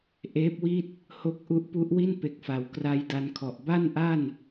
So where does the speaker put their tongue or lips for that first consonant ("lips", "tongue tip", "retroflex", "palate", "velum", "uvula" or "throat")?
throat